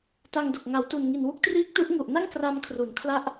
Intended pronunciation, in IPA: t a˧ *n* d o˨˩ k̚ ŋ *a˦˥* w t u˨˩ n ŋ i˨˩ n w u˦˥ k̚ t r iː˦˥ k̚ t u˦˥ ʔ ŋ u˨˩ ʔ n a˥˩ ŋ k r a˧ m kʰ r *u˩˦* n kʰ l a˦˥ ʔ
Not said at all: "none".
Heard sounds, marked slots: ŋ, a˩˦, u˩˦

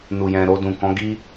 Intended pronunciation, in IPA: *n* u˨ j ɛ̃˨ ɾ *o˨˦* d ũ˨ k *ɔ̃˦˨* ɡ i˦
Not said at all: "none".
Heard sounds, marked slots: n, o˧, ɔ̃˨˦

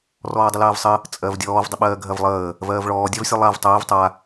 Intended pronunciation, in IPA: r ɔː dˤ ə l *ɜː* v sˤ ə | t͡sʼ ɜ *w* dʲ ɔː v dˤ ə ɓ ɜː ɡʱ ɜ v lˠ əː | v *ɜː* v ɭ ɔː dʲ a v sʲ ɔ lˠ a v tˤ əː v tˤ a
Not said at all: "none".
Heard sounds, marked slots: ɜː, v, ɜː

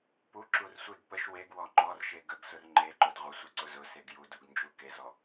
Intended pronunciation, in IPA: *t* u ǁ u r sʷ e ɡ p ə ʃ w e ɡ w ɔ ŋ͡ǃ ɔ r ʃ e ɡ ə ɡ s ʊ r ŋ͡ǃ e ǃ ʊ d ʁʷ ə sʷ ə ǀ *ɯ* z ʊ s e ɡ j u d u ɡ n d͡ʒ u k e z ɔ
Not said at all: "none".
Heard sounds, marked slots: p, ʊ

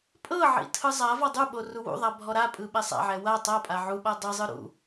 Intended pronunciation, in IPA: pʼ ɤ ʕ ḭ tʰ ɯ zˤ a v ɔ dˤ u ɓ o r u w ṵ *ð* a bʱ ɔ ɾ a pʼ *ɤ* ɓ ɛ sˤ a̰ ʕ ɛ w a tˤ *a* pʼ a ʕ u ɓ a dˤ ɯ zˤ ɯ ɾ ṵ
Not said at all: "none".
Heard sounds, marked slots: ðˤ, ɯ, a

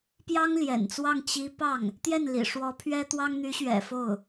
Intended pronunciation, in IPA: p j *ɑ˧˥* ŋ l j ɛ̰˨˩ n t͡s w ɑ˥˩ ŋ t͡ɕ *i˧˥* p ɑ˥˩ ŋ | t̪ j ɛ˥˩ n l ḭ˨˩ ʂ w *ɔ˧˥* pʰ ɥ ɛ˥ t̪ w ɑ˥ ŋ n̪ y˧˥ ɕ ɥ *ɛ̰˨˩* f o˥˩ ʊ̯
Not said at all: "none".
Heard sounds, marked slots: ɑ˥, i˧˥, ɔ˧˥, ɛ̰˨˩

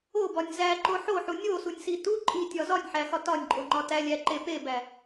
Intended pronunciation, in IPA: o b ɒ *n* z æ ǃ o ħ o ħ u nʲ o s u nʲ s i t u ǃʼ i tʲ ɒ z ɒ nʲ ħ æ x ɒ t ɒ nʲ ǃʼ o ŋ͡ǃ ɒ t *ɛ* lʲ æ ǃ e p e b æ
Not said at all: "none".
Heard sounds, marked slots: nʲ, æ

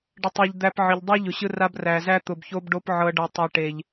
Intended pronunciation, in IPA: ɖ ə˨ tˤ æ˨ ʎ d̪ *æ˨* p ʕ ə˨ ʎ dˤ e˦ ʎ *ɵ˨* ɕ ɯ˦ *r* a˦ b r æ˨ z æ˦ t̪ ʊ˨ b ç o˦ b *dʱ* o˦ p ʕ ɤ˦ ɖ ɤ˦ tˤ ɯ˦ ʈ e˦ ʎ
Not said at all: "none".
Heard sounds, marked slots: æ˨, ʊ˨, r, ɖ

